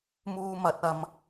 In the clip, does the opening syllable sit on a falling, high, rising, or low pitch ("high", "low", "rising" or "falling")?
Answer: high